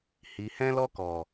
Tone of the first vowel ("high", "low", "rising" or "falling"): low